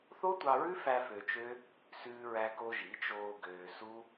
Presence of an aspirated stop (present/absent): absent